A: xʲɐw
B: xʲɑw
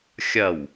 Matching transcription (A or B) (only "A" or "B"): A